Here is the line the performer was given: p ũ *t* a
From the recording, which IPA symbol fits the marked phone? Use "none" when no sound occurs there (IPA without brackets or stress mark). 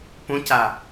c